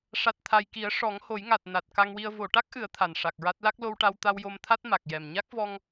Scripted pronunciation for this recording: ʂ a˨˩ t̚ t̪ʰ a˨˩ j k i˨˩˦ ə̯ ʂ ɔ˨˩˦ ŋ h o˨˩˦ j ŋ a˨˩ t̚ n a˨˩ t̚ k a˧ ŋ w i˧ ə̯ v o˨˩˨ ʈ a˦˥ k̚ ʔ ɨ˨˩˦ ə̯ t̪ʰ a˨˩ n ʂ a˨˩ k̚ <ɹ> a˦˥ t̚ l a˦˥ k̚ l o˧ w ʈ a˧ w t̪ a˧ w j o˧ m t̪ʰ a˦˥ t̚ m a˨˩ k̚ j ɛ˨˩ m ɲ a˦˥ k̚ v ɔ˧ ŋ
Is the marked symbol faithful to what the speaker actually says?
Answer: yes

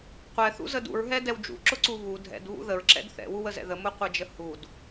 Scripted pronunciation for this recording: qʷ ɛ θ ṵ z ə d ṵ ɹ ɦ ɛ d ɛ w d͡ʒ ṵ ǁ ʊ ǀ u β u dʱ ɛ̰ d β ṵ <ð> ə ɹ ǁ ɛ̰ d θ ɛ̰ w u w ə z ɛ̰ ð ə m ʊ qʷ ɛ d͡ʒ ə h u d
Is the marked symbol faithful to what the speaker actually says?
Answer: yes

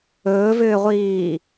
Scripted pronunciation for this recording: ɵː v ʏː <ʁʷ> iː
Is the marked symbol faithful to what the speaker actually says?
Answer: yes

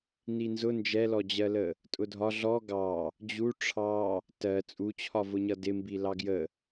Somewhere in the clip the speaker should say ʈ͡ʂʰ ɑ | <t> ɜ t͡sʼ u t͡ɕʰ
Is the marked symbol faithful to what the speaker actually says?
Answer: yes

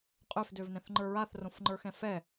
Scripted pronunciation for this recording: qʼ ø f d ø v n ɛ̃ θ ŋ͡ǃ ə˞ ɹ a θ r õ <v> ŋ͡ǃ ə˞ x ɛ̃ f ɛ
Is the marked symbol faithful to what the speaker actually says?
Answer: no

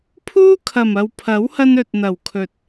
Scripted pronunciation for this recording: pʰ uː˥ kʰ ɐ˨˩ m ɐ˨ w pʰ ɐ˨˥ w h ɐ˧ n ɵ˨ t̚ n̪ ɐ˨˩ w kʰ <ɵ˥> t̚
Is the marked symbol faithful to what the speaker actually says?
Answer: no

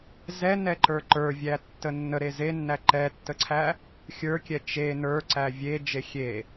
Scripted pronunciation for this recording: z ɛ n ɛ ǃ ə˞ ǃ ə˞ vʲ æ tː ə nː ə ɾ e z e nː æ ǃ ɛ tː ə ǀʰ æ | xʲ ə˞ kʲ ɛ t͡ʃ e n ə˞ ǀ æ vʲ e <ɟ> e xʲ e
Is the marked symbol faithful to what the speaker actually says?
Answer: no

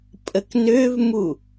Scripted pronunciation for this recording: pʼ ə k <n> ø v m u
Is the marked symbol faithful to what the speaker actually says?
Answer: yes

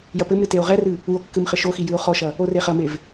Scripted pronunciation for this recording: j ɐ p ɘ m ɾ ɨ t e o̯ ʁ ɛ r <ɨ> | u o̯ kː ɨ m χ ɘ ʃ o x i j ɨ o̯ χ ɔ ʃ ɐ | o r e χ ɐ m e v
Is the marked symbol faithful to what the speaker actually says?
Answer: yes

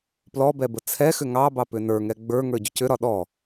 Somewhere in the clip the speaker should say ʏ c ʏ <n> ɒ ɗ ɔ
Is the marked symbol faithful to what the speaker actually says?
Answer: no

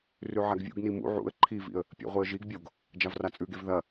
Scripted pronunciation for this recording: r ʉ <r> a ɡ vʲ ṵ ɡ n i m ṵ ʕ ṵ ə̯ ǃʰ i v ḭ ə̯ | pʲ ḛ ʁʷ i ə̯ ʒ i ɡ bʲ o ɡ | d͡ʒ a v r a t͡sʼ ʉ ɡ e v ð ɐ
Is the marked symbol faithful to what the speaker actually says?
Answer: no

